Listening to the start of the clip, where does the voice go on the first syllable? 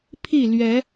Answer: falling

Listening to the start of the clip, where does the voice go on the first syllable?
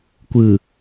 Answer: low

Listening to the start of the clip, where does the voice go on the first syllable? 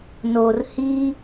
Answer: low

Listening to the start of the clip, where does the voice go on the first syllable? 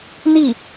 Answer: falling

